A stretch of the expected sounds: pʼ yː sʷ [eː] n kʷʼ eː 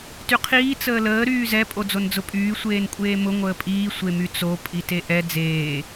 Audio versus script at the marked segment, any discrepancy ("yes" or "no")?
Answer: no